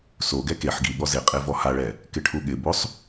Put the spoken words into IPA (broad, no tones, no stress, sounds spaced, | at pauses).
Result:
s o ɡ ɛ k e ħ ɡ i ɠ ɔ z e qʼ e v ɔ h a ɭ ɛ | k ɪ ʈʰ u ɠ ɪ b o sˤ